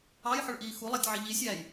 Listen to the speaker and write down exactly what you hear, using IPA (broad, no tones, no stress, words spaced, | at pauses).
ɑjħʊɭʔiː xulˠætʲʕɪ ʎisʲæːj